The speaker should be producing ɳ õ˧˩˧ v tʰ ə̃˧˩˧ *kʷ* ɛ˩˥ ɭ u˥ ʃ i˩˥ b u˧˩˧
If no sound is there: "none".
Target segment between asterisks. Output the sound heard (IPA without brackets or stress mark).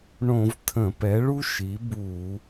p